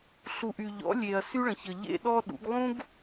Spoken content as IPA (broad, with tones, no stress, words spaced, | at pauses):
ɬu˨ʔy˨ʎɔ̰˨˦lʲe˨ɐ̯ sy˦ɭə̃˨çə˨ ʎḛ˦ɗɔ˦ ɗṵ˨˦ɡlˠũ˦ɡ